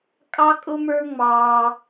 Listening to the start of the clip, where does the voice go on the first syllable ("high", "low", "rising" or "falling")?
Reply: high